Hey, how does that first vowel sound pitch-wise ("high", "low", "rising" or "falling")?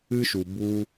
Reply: high